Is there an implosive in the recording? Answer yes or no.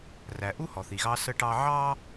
no